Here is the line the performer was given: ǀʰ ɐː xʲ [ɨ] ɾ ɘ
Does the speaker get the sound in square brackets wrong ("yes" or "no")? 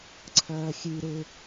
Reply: no